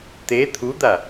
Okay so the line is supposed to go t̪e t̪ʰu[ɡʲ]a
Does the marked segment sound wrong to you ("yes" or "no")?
yes